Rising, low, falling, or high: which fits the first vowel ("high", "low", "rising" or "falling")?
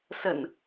low